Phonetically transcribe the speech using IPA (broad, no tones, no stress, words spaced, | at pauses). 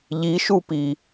ʎiʃupi